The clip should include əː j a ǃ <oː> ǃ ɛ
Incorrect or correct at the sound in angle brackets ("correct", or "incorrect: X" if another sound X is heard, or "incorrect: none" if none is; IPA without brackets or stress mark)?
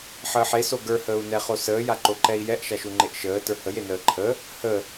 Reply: incorrect: o